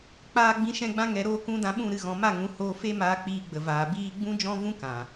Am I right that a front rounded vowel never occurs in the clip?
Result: yes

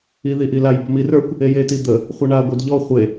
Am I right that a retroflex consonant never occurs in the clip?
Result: no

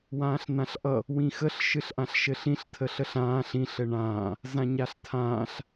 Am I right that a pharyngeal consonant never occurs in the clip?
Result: yes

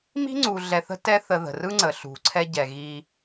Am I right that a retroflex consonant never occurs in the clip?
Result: yes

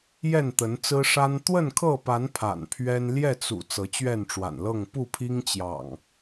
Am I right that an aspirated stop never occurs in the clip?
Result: no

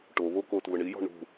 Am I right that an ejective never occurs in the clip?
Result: yes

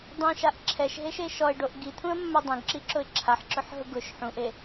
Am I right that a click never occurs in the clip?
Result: no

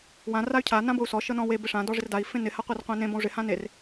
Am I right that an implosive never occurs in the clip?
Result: yes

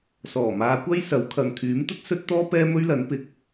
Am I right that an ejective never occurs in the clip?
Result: yes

